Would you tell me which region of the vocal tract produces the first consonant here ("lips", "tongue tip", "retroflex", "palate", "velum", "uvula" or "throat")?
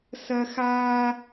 tongue tip